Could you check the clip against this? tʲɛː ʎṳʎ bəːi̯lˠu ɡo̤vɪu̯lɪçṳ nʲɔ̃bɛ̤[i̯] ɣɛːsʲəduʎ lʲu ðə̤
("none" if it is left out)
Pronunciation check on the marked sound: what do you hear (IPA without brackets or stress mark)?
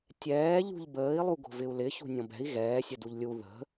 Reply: i̯